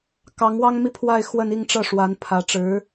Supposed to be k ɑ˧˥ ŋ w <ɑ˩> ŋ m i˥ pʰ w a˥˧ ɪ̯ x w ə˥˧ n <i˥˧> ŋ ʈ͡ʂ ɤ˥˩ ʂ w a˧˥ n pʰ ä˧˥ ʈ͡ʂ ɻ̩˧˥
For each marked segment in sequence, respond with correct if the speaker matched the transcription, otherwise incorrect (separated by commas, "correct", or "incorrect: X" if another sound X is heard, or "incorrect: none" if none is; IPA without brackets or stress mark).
incorrect: ɑ˥, correct